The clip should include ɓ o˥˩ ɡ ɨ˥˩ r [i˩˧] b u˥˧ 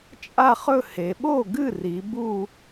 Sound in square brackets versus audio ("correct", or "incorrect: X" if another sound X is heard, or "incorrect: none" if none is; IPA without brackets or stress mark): correct